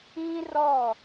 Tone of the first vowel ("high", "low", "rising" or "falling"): high